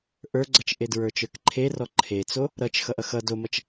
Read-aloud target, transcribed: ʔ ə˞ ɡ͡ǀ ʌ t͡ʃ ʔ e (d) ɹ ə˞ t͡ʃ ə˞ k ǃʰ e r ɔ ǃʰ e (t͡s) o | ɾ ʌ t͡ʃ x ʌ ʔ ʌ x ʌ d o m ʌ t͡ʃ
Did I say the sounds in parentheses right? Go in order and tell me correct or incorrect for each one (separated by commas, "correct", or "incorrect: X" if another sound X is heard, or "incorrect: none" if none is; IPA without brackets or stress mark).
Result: correct, correct